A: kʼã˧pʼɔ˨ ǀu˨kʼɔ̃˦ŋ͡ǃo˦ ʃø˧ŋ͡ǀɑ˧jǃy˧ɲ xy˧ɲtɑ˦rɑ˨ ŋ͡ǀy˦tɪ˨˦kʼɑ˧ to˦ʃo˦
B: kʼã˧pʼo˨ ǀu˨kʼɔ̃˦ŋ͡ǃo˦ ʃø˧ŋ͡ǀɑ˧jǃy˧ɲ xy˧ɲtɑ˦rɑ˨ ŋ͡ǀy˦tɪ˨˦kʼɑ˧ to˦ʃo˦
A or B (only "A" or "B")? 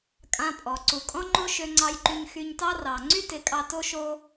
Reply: A